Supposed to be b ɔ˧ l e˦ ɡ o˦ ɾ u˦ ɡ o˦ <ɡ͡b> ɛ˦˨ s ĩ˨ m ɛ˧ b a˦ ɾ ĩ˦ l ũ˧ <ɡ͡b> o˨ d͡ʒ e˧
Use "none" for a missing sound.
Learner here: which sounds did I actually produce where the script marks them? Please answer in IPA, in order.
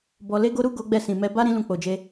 ɡ͡b, k͡p

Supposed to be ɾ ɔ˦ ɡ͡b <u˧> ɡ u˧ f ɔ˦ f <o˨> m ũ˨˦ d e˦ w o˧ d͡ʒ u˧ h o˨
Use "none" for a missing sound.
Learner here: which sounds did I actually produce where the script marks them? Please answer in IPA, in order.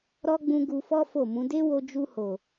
ũ˧, o˦˨

